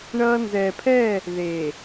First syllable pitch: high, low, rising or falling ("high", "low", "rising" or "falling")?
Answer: high